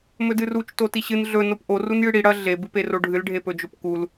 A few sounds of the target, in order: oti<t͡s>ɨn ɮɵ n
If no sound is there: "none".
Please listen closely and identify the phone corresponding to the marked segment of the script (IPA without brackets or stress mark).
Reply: ɕ